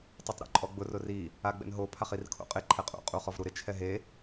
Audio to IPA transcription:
tˤ i tˤ ɾ ṵ ǃʼ ɔ ɡ͡b ʊ r ʊ r i | a ɡ͡b ɛ̰ n ɦ o pʰ a χ i r kʰ o̰ qʼ ɪ ǃʰ ɛ qʼ ṵ qʼ u χ ɔ v ɾ u ɾ ɪ t͡ʃʰ ɛ ɦ e

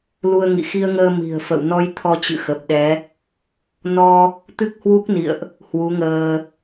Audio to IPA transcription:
l u˧ ə̯ ŋ ḭ˧˨ x i˧ ə̯ ŋ əː˧ m i̤˨˩ ə̯ f ə̰˧˨ w n ɔ˧ j t̪ʰ ɔ˧ t͡ɕ ɨ̰˧˨ x ə˨˩ p̚ ɗ ɛ˨˦ | n ɔ˧ | t̪ ɨ˦˥ k̚ h w u˦˥ k̚ n ḭ˧˨ ə̯ ʔ | h w u˨˦ ŋ əː˧

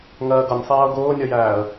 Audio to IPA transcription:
ŋ ɜː ɡ ʌ nʲ sˤ æː ʊ̯ ɡ ʊː nʲ ʌ j æː ə̯

